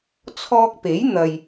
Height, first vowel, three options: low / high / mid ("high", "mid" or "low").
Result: mid